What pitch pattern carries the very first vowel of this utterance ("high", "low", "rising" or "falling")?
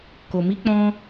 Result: low